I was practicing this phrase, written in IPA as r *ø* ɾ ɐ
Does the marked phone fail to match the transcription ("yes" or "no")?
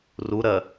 yes